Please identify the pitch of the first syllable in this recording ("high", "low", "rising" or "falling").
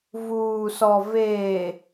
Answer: low